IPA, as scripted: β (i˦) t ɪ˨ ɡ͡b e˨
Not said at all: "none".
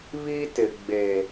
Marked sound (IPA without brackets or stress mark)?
i˦